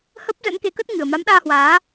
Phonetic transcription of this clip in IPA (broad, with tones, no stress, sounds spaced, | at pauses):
h ə˦˥ p̚ z ə̰˧˥ n k e˨˦ k ə˦˥ t̚ ŋ ɨ˨˩ ə̯ m a˨˦ m ɗ aː˧ h w aː˨˦